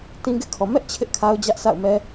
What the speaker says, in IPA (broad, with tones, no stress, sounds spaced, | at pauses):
t ĩ˦ ɡ ɪ˦ ʔ kʰ ɔ˨ m ɛ˦ ʔ t͡ɕʰ ɪ˦ ʔ kʰ a˦ ʊ̯ d͡ʑ ä˦ ʔ s a̰˦˨ ʊ̯ m ɛ˦